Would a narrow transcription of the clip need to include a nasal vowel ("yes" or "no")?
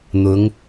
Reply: no